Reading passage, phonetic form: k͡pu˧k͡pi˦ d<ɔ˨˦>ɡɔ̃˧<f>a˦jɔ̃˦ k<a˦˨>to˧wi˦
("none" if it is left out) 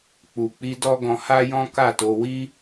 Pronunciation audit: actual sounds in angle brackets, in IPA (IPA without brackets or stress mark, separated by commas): ɔ˦, h, a˦˨